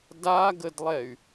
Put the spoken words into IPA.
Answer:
d a ɡ ə d lˠ ɛ y̯

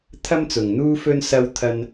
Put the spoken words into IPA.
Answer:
t̪ʰ ɐ˥ m t͡s ʊ˨ ŋ n̪ uː˥ f ɵ˥ n s ɐ˥ w t̪ʰ ɐ˧ n

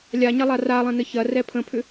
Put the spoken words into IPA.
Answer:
lʲ a ɲ ɐ lˠ a r a lˠ ɐ̃ n ə ç ɐ r ɛ pʰ ə̃ pʰ ʏ

